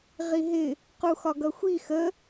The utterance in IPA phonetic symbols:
ʁiɦɪ | quxɒɡʌxʷi xə

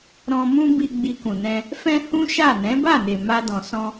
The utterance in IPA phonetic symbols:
ɾɔ̃˧mũ˦ bi˧ ɡ͡bi˧kũ˨nɛ̃˧ | fɛ̃˧ hũ˦ʃa˦˨ nɛ̃˨˦ba˦˨ne˨ ma˧dɔ̃˨ sɔ̃˧

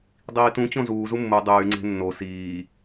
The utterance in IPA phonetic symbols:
dˤiːtũ t͡ɕõzuːzu mːu dˤyː ŋ͡ǀe̤nːo siː

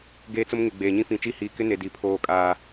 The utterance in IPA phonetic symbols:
ɡeː˦t͡sʊ˦m ŋe˨ɡ͡beː˨ɲĩ˦ fĩ˨t͡ʃi˦˨ hiː˨ kɪ˦ne˨ di˨pʰoː˦˨kʼaː˦

